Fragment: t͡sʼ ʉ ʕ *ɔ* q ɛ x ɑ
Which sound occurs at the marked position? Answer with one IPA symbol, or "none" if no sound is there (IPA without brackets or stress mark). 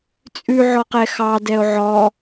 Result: ɔ